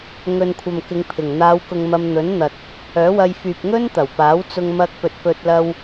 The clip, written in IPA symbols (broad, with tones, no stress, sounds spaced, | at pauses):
ŋ ɵ˨ n kʷʰ ɐ˨ m k ɪ˨˧ ŋ pʰ ɪ˨˩ ŋ n̪ aː˨˧ w k ʊ˨ ŋ m ɐ˧ m n̪ ɵ˨˥ n n̪ ɐ˨ t̚ | œː˨˥ w ɐ˧ j f yː˨ p̚ ŋ ɵ˥ n t̪ ɐ˨˩ w p aː˨˥ w t͡s ʊ˧ ŋ m ɐ˧ k̚ p ɵ˨ t̚ f ɵ˧ t̚ l ɐ˧ w